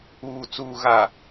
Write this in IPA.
uː˨t͡suː˨ɣa˨

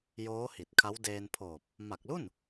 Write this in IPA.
joː˦˥hi˨˩t̚kʰa˦˥w deː˧npʰoː˨˩p̚ | ma˨˩k̚lu˥˩n

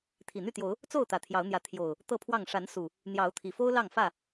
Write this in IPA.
t̪ʰi˨˩n̪y˥˨t̪jo˨˦ʊ̯ | t͡so˥˨ʊ̯ t̪ä˨˩t̪ʰjɑ˨˦ʊ̯n̪jä˨˦ t̪ʰjo˨˩ʊ̯ | t̪ɤ˥˨pʰwɑ˥˨ŋ ʂa˨˦n su˨˩ | n̪jɑ˨˦ʊ̯t̪ʰi˨˩fo˦ʊ̯ lɑ˥˨ŋfä˥˨

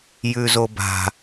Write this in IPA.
jʉzoba̤

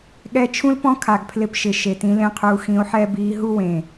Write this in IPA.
ɠɛ˧t͡ʃʰũ˦lpɔ̃˦kʰa˨ɡ pʰlɪ˧pʃɪ˨ ʃe˨tĩ˧lẽ˦qʰuː˧ xĩ˧o̯ħɛ˦ biː˧ɦu˦wẽ˨

